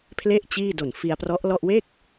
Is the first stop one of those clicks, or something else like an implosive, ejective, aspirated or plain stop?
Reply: aspirated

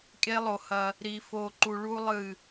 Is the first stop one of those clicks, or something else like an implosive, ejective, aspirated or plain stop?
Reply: ejective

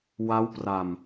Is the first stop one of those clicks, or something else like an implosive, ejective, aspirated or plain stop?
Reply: plain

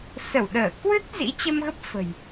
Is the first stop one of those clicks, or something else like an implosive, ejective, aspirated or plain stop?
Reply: implosive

